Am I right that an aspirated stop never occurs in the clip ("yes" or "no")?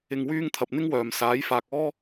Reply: no